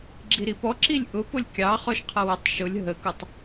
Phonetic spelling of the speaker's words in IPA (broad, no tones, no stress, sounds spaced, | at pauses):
ɡ͡ǁ i ɾ i p ɔ ǁ i lʲ ʔ ʊ p ʊ lʲ kʲ ɑ χ ɔ ʃ qʰ ʌ w ə tˤ ʃ ʊ lʲ ɦ ə k u tˤ